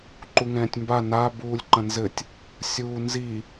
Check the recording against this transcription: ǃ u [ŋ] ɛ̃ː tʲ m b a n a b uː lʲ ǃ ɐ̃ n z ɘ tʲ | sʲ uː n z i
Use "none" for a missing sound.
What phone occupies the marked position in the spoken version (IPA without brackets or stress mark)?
ŋ